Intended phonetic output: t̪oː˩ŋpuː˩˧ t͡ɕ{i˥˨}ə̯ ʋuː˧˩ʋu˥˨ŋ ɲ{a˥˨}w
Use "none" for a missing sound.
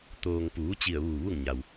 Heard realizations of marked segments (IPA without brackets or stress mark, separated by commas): i˧˩, a˩